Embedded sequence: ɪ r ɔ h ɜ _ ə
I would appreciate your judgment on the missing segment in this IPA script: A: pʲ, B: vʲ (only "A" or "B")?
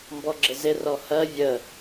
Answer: B